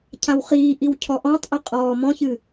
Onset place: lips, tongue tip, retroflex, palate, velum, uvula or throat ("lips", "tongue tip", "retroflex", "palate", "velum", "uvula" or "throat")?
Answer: palate